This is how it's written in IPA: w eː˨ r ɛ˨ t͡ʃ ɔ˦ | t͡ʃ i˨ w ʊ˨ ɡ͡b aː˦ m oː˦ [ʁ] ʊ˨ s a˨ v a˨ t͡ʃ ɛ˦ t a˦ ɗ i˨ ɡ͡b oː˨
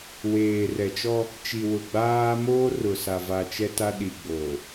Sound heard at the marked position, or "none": r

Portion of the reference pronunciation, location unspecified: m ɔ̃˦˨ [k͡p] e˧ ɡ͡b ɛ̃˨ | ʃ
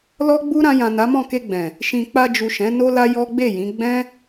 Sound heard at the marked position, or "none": k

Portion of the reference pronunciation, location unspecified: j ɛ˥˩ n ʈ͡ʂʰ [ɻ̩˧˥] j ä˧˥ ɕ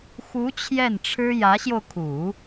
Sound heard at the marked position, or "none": ɻ̩˥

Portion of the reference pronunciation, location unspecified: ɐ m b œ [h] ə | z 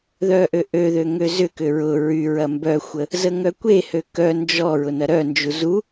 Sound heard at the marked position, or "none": xʷ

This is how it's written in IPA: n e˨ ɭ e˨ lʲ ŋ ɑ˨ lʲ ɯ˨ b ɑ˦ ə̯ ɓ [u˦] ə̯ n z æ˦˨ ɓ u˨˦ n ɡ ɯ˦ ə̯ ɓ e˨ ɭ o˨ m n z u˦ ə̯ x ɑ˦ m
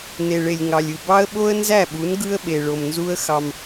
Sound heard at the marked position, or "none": o˦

